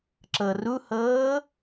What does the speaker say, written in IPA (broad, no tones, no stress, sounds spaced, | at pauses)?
ǁ ɤ r u h ɤː